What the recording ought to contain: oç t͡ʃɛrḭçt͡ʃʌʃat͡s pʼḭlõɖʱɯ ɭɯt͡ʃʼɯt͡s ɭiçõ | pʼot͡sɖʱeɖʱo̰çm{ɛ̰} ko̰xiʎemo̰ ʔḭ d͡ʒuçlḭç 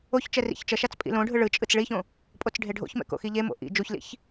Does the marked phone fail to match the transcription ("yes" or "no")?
no